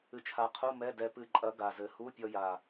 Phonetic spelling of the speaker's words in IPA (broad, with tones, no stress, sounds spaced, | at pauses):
ɨ˧ t͡ʃʰ a˨˥ qʰ u˧˥˧ m ɛ˧˥˧ d ɛ˧ p ɨ˧ ǃʼ ɐ˨˥ ɡ a˨˩ z ɘ˨˩ h u˧˥˧ pʲ ɔ˧ j a˨˩